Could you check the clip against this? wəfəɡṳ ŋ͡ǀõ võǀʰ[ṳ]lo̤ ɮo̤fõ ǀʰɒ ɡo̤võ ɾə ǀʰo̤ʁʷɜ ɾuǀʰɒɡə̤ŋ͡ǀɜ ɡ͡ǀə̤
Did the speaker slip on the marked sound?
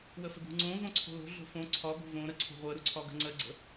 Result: yes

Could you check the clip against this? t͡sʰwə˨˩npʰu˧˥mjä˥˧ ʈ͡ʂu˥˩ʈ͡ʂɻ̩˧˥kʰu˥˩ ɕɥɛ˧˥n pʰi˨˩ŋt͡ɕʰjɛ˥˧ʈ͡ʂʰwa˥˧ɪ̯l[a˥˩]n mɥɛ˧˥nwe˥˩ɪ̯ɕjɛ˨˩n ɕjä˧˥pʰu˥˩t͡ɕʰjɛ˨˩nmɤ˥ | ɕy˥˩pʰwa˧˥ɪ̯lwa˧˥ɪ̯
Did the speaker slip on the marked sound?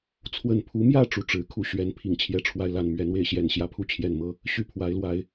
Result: no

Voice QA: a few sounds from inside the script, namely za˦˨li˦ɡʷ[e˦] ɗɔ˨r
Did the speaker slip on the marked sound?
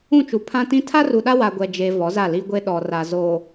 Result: no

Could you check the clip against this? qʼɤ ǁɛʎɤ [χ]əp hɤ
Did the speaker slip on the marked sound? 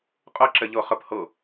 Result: no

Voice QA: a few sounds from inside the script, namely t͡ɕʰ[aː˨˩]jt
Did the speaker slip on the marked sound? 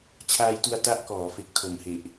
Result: yes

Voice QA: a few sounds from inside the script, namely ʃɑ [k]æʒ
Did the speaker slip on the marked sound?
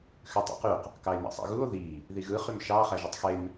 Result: yes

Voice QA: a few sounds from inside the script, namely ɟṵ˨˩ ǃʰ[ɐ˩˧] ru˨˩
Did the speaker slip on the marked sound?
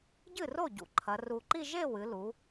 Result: no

